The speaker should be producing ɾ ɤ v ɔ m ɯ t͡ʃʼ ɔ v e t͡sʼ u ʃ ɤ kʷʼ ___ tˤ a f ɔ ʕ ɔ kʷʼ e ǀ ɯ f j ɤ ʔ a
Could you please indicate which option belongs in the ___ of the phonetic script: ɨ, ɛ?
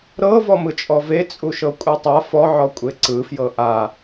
ɛ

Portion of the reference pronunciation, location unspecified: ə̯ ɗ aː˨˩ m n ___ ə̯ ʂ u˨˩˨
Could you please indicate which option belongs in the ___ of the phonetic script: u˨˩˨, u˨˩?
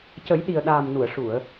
u˨˩˨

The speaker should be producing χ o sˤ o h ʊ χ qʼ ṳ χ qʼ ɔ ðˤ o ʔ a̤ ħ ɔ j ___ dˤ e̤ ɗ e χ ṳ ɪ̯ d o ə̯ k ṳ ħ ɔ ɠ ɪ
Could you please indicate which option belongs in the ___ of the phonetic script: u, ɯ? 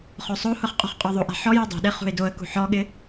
u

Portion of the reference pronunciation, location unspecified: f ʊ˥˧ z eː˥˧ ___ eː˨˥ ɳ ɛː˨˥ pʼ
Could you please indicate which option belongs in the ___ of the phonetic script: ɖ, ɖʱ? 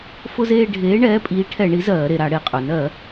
ɖʱ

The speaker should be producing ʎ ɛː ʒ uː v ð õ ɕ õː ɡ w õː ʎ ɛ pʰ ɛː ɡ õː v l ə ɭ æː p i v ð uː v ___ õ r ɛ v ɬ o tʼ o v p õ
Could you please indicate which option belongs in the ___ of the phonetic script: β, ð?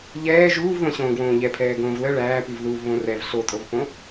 β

